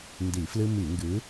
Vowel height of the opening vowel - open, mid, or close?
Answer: close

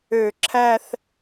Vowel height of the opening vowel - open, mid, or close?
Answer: mid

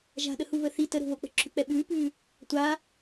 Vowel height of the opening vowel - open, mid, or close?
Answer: open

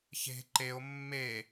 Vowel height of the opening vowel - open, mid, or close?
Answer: mid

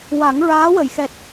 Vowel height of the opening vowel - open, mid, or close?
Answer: open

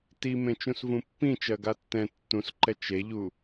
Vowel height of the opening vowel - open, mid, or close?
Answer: close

